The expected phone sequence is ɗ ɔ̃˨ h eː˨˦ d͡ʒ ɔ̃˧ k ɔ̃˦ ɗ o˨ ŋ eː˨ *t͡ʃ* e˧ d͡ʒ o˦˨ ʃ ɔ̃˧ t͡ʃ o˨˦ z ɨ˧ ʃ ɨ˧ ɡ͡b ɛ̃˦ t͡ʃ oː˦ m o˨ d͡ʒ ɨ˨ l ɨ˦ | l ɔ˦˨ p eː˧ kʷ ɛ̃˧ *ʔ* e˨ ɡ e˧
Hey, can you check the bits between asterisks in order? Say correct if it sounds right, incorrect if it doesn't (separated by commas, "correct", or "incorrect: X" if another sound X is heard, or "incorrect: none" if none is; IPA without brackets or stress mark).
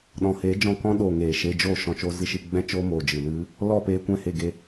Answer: incorrect: ʃ, incorrect: h